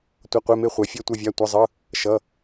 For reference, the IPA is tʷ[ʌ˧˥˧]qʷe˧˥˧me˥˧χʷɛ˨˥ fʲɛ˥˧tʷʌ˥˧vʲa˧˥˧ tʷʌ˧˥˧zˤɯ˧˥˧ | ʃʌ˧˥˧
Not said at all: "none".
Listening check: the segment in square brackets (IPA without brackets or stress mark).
ʌ˧˥˧